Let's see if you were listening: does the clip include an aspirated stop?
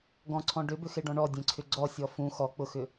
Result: yes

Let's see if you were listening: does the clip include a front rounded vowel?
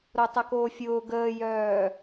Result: yes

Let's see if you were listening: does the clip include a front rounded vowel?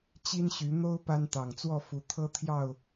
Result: yes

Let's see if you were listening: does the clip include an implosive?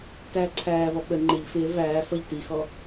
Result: yes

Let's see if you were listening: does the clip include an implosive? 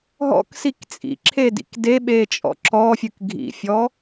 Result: yes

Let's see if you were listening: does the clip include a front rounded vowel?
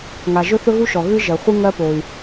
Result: yes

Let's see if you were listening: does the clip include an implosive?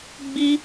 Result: no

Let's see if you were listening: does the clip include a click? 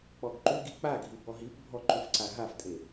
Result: yes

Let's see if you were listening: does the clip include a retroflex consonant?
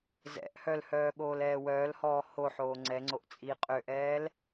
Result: no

